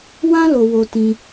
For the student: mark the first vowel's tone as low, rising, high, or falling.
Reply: high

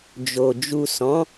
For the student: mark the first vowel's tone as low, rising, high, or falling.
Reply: low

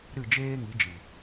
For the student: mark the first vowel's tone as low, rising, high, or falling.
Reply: falling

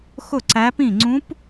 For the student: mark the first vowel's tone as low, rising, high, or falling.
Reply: falling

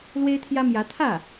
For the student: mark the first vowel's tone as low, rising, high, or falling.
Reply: high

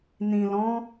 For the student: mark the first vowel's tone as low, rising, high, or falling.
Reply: low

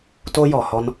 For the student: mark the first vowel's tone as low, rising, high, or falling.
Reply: high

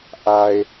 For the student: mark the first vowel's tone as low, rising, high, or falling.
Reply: low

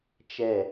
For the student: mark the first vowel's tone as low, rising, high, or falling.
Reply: falling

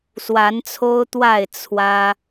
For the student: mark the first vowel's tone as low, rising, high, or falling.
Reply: rising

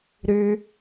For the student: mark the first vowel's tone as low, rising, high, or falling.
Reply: high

